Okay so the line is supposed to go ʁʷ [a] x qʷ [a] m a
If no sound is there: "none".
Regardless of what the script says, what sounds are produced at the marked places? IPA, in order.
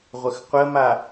ə, ə

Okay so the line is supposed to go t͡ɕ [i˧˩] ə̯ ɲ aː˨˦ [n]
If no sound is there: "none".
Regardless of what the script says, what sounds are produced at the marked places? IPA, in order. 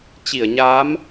i˧˩, m

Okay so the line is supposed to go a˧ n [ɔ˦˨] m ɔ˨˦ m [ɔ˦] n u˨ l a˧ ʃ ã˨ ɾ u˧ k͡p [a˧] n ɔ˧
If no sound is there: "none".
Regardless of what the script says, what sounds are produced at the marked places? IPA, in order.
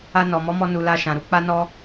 ɔ˨, ɔ˧, a˧

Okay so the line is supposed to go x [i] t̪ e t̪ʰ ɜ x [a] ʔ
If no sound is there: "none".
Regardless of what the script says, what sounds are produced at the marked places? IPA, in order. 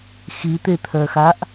i, a

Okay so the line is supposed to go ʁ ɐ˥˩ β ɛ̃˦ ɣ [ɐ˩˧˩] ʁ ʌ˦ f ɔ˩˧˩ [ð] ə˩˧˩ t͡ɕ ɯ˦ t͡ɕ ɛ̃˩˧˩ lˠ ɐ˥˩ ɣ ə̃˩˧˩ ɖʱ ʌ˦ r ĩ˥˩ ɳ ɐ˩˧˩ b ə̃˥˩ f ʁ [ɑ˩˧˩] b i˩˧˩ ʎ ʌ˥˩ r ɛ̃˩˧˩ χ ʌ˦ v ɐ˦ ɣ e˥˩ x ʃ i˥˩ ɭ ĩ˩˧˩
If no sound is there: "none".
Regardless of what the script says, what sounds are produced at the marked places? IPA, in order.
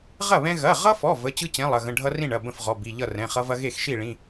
ɐ˩˧˩, v, ɔ˩˧˩

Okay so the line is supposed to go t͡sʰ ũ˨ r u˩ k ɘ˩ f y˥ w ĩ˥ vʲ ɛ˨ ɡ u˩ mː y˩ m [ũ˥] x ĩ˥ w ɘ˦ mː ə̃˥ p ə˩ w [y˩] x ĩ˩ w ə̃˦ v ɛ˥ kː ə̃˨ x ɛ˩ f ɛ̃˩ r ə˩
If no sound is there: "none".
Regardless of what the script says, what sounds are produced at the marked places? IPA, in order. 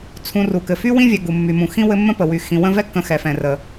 ũ˩, y˩

